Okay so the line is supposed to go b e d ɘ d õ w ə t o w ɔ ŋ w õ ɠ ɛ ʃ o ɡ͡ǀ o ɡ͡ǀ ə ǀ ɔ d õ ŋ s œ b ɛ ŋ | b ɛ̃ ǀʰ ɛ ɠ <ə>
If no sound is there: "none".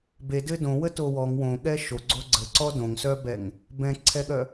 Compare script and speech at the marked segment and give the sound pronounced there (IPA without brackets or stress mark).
œ